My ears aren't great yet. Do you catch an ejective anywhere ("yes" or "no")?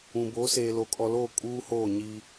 yes